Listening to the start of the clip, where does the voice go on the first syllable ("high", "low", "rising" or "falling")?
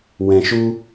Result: low